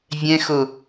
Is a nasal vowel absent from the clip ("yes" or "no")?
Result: no